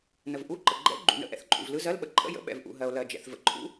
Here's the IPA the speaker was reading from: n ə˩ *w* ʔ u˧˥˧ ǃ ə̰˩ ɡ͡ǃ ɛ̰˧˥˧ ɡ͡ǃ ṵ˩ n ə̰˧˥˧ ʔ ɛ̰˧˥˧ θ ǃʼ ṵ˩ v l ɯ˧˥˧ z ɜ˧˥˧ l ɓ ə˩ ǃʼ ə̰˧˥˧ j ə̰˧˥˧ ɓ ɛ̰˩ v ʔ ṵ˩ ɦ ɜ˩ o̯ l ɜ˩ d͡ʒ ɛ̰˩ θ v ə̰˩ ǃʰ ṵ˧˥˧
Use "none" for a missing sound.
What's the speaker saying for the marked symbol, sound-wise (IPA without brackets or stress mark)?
v